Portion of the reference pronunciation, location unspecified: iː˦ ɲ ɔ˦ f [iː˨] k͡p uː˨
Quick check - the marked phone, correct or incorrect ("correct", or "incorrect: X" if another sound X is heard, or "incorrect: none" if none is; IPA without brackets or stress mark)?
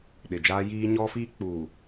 incorrect: iː˦